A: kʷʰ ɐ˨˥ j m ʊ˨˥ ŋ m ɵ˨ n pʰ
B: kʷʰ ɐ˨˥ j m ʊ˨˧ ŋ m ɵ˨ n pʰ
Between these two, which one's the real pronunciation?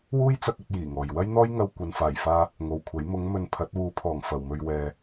B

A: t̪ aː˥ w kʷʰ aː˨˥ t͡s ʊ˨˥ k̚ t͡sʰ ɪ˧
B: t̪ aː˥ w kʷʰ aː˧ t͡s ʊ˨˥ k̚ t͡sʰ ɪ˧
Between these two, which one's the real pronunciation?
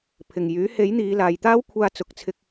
B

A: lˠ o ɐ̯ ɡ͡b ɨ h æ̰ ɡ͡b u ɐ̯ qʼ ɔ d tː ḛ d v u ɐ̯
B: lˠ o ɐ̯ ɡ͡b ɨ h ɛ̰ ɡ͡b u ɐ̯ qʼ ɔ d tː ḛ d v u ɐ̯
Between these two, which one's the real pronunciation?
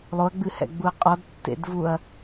B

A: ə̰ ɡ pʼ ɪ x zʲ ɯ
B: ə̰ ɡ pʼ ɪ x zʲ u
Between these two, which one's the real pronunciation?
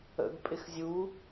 B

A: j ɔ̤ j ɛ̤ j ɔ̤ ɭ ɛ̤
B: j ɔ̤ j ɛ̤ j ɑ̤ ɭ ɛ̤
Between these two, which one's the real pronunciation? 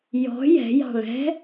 B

